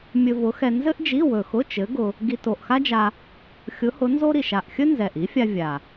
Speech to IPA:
mʲɵ˧vʊ˨˥xɛ˧ nzɘ˥ʔd͡ʒi˧˥˧ wɵ˨˩xʊ˧˥˧ t͡ʃɘ˨˥ɡʊ˧ | ɡi˧ to˨˩ʔxa˥d͡ʒa˧ | xʲʊ˨˥hʊ˨˥nzo˥ ɾi˨˩ʃa˨˩ʔxʲɵ˥ nzɛ˨˩ʔi˨˥fʲa˧ vʲa˨˩

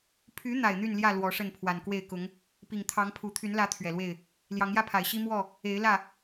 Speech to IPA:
pʰy˨˦ n̪a˨˩ɪ̯n̪y˥˨nljä˥˨ lwɔ˨˦ʂə˥˨n pʰwa˨˩nkwe˥˨ɪ̯kʊ˨˦ŋ | pi˨˩ŋ t̪ʰɑ˨˦ŋpʰu˨˩ t̪ʰy˨˦nlä˨˦ t̪ʰɥɛ˨˩lwe˥˨ɪ̯ | ljɑ˨˦ŋjä˦pʰa˨˩ɪ̯ɕi˦ mwɔ˥˨ | e˨˦ɪ̯lä˥˨

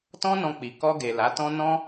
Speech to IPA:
tɔ̃˦nɔ̃˧ k͡pi˨ kɔ˧ɡe˨ la˨˦tɔ̃˦ nɔ̃˦

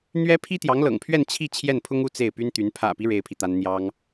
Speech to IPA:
n̪ɥɛ˥ pʰi˥t̪jɑ˧˥ŋlɤ̰˨˩ŋpʰɥɛ˥˧n t͡ɕʰi˥˧ t͡ɕʰjɛ˥˩npʰʊ˥ŋu˥˧ t͡se˥˩ɪ̯py˥nt̪y˧˥n pʰä̰˨˩pi˦ ɻe˥ɪ̯pʰi˨t̪a˥n n̪jɑ˥ŋ

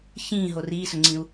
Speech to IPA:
çĩːɦo riːsɵŋ͡ǀĩu̯

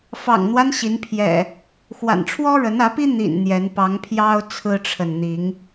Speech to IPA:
fɑ̰˨˩ŋn̪wa˦n ɕi˨˦npʰjɛ̰˨˩ | xwa̰˨˩nʈ͡ʂʰwɔ˦ɻə˨˦n ä˨˦pi˦ n̪ḭ˨˩n n̪jɛ˨˦n pɑ˨˦ŋpʰjɑ˦ʊ̯ t͡sʰɹ̩˦ʈ͡ʂʰə˨n n̪i˨˦ŋ

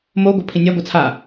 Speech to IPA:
mo ɡʷʌpʰĩnʲa ɡʷʌt͡sʰa

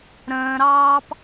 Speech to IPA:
ɾə̃ːɾɑːp

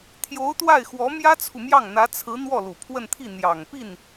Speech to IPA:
t̪ʰjo˧˥ʊ̯t̪wa˥˩ɪ̯ xwɔ˧˥mjä˥t͡sʰu˨mjɑ˥˩ŋ n̪ä˧˥t͡sʰɹ̩˧˥ n̪wɔ˥˩lu˨˩pʰwə˥˧nt̪ʰi˥˩ n̪jɑ˨˩ŋpi˥˩n

